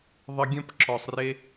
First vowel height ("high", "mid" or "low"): high